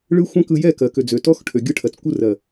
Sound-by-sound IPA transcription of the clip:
ɭɯ˦xʷɛ̃˦kɯ˧ jɛ˦˨kɜ˨ kø˨d͡zø˨tɔ˦xʈʰø˨ ɡʲɯ˧ʈʰɜ˨t͡skʷɯ˧rɜ˨

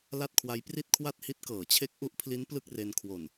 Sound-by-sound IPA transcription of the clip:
la˥˩t̚kʰwa˦˥j pri˥˩t̚kʰwa˥˩t̚hi˦˥t̚ kɤː˩˦t͡ɕʰe˦˥k̚ʔu˦˥ʔpʰli˦˥n plɯ˥˩k̚re˧nkʰwo˨˩n

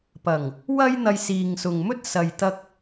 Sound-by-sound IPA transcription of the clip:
pɐ˨˩ŋ | wɐ˧j n̪ɐ˧jsiː˨ŋsʊ˨ŋmɵ˥t̚ sɐ˨jt̪ɐ˧k̚

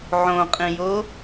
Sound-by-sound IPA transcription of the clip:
ʕõqʼĩjo

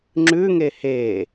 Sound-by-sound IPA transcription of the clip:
ŋ͡ǁʉŋe he

